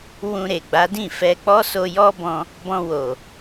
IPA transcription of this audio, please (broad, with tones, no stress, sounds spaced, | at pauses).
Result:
w ũ˧ ɾ e˨ ɡ͡b a˨˦ d ĩ˦˨ f ɛ˧ k͡p ɔ˦ s o˧ j ɔ˦ b ɔ̃˧ | b ɔ̃˧ w o˨